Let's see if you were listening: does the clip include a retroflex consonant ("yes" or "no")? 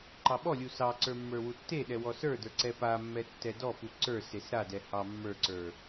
no